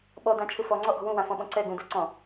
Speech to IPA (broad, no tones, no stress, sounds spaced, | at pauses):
ɓ ɔ d ã t͡ʃʰ ɯ f ɔ ŋ͡ǀ ɔ ʔ ɔ̤ w ũ w ã f ɔ̃ ɓ ɔ̃ ǀ ɛ ɡ ũ d u ǀ ɔ̃